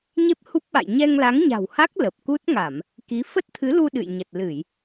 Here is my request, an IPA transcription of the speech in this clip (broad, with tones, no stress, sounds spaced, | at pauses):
ɲ e˦˥ p̚ h u˦˥ p̚ ɓ a̰˧˨ j ɲ ɛ˧ ŋ l a˨˦ ŋ ɲ a̤˨˩ w h a˦˥ k̚ l ə˨˩ p̚ k u˦˥ t̚ ŋ a˧˩˨ m | k i˨˦ f ə˦˥ t̚ t̪ʰ ɨ˨˦ l u˧ ɗ ɨ̰˧˨ j ɲ ə˨˩ t̚ l ɨ˧˩˨ j